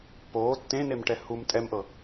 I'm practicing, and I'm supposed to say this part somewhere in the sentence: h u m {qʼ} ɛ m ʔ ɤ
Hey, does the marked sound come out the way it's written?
no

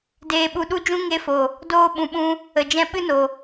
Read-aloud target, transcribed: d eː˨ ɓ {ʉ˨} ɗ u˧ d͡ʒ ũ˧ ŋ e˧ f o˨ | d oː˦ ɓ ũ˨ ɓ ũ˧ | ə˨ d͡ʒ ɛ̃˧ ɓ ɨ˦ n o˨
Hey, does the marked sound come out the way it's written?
no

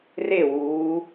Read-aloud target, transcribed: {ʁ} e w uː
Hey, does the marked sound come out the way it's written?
no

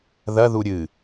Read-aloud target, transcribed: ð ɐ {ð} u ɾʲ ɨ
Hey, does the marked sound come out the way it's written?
yes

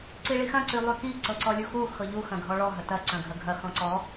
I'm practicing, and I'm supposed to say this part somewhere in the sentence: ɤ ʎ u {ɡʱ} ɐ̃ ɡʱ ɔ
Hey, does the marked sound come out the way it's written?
no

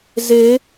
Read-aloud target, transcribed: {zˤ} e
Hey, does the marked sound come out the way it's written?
no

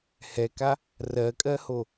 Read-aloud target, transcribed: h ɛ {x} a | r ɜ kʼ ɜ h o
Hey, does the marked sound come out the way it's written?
no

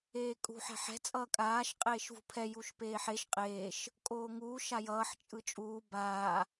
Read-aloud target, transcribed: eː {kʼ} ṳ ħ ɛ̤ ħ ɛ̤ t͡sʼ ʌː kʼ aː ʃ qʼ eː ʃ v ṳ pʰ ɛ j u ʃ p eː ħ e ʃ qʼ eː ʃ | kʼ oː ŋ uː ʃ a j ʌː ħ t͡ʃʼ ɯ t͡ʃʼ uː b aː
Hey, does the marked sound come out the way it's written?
yes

